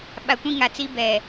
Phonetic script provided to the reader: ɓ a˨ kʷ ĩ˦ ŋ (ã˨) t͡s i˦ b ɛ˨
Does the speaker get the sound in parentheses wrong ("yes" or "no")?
yes